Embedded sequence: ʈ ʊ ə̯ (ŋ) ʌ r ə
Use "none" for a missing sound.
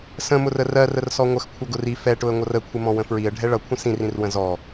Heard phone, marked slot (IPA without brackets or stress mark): ŋʷ